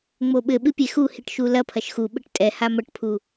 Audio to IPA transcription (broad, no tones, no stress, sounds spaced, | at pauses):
ŋ͡m o ɓ ɘ ɓ ɨ pʲ e x u h i ʈ ʃ u l ɐ pʰ ɐ ʃ x u ɓ ɘ ʈ tʼ ɛ h a m ɐ ʈ pʰ u